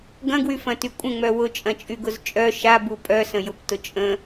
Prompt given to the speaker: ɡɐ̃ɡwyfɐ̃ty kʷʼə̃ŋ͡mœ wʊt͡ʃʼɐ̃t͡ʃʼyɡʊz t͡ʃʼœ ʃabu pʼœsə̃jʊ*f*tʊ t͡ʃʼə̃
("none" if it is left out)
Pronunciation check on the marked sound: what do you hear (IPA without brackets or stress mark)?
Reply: p